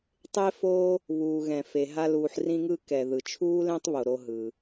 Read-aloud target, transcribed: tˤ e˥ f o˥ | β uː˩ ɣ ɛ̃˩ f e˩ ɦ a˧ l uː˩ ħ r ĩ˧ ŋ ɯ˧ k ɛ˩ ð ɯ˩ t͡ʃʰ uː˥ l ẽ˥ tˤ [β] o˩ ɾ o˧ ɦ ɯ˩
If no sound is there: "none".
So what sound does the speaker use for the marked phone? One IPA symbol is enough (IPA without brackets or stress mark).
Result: β